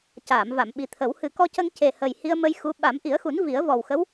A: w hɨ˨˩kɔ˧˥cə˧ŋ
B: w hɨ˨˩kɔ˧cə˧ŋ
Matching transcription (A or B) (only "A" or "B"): B